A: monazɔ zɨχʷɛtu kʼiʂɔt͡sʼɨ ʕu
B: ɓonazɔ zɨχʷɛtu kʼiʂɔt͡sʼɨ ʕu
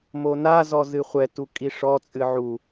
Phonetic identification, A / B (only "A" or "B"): A